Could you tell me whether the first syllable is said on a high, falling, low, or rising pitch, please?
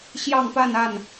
falling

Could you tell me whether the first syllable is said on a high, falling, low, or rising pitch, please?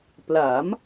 rising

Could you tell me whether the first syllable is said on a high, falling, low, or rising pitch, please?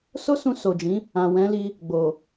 high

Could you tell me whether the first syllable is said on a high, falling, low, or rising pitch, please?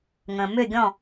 low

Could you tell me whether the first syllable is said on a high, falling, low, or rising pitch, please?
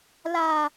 high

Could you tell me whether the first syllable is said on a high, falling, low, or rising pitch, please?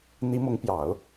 rising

